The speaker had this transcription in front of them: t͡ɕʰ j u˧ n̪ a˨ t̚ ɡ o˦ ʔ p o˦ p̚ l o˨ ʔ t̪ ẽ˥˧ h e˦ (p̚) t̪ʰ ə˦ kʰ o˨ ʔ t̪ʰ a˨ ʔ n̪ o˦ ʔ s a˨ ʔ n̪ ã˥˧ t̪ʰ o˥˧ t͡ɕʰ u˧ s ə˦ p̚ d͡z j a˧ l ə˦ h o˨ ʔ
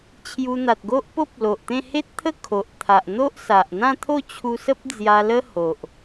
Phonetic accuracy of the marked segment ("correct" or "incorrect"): incorrect